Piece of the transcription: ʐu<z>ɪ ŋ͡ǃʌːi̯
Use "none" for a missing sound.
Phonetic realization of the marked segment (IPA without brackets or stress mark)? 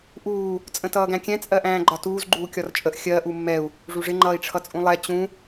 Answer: ʐ